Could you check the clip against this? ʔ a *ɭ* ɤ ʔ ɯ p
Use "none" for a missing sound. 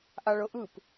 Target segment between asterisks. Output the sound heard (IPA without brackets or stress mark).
ɭ